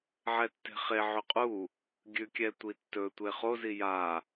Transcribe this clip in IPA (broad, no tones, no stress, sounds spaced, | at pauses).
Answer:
ʕ ɛ tː e̤ χ e ʕ ʏ qʼ u | ɡʲ ʉ kʲ ɛ tʷ i tː ɵ tʷ e χ o z i j a